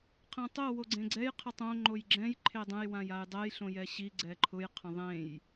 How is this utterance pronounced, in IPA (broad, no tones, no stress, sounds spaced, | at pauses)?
qʰ ɛ̃ tˤ o w o ɡ͡ǀ ẽ ɡ͡ǀ ɛ j qʰ ə tˤ õ ŋ͡ǃ o j ɡ͡ǁ ɛ̃ j ǃʰ e dˤ ə̃ j w ã j a j dˤ ɛ j ɬ õ j ɛ ɕ i ɡ͡ǀ ɛ ǃʰ ʊ j qʰ ə̃ ðˤ ẽ j